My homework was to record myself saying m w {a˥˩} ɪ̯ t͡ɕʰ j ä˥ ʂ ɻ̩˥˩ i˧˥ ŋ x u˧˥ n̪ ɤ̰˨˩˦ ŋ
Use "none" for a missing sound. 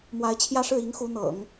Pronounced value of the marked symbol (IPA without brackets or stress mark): a˧˥